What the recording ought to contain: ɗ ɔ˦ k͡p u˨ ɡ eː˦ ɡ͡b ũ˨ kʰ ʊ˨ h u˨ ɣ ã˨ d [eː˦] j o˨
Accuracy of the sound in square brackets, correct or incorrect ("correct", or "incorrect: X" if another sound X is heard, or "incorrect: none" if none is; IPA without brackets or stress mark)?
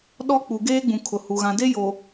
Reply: incorrect: e˦